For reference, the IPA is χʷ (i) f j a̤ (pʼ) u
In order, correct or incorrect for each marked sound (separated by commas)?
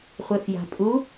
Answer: incorrect, correct